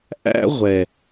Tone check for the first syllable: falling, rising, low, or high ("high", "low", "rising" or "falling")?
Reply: high